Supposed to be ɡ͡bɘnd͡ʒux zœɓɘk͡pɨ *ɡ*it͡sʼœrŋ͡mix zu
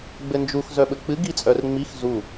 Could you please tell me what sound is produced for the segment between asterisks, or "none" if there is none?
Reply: ɡ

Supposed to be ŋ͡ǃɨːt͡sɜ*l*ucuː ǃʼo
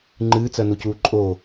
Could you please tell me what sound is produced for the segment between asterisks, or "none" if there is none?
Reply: n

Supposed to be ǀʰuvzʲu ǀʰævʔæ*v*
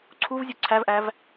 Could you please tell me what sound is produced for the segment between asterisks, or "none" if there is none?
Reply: v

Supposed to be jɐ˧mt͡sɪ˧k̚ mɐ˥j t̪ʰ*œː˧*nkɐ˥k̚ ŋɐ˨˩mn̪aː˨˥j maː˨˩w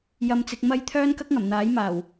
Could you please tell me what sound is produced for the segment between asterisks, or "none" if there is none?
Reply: œː˥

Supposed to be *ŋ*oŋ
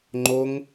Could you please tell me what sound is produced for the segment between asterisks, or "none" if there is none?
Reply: ŋ͡ǃ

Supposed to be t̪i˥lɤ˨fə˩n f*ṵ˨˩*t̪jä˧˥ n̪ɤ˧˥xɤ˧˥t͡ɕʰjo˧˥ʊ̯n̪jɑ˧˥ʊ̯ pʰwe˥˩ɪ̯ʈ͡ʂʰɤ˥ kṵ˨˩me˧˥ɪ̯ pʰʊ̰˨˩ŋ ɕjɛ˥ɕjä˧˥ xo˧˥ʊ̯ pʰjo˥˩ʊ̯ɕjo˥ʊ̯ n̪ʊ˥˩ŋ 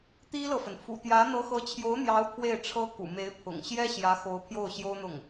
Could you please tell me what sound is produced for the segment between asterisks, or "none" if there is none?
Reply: ṵ˨˩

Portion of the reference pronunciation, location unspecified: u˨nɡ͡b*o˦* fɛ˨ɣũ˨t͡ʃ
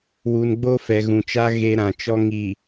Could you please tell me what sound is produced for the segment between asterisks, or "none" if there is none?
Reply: o˦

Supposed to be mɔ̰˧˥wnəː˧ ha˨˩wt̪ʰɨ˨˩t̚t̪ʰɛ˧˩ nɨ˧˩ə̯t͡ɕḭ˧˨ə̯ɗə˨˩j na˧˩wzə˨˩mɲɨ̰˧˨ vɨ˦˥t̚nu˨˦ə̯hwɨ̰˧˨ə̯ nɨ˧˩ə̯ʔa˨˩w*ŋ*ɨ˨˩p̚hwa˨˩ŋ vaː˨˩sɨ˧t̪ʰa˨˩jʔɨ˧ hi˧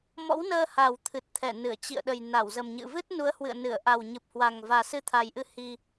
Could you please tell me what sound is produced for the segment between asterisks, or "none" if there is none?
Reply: ɲ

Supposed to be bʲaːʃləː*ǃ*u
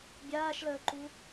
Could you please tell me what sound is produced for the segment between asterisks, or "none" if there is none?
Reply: ǃ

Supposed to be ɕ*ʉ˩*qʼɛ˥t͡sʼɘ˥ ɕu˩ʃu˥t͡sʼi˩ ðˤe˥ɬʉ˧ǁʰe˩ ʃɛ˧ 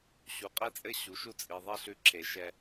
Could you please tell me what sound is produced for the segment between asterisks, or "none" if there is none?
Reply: u˩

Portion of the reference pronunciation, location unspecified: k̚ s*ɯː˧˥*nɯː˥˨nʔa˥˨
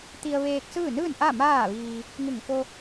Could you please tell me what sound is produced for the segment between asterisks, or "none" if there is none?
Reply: ɯː˥˨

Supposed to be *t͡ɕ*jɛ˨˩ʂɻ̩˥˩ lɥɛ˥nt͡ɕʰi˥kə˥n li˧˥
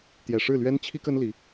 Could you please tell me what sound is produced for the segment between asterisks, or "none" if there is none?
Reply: t̪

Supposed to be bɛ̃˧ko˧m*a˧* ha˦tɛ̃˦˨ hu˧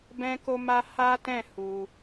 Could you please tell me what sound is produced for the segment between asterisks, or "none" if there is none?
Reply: a˧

